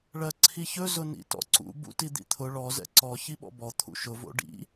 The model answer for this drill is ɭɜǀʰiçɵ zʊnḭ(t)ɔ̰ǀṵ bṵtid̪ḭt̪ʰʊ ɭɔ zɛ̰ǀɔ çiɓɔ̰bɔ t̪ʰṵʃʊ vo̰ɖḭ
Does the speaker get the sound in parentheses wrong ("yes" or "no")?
no